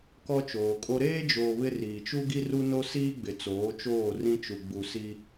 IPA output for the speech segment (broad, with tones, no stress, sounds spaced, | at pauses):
k ɔ˦ t͡ʃ oː˨ kʼ o˦ ɾ eː˦ d͡ʒ oː˨ β ɪ˦ r iː˨ t͡ʃ u˦ ɡ i˦ r u˦ n o˦ s iː˦ ɡ͡b ɪ˨ t͡s oː˨˦ t͡ʃ oː˦˨ r ĩ˦ t͡ʃ u˨ ɡ͡b u˨ s i˦